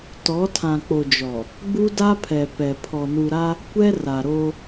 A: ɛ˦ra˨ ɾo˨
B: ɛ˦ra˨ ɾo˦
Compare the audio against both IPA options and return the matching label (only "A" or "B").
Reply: B